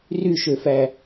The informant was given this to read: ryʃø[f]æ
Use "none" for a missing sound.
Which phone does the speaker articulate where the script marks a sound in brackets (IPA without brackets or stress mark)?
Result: f